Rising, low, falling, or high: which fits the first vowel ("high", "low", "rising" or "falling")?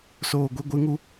low